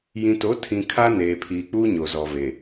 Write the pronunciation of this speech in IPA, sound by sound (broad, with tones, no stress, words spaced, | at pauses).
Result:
jĩ˨to˨˦tʰĩ˨ kʰa˦neː˨pʰiː˨k͡puː˦ ɲo˨zɔ˨ve˨